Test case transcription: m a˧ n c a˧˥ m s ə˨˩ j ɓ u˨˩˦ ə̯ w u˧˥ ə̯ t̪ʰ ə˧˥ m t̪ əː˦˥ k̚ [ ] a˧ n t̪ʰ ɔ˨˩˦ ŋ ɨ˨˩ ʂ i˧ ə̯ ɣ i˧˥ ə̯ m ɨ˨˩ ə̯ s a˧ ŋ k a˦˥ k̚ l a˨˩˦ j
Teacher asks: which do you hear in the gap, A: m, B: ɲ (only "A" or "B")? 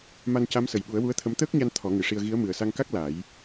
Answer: B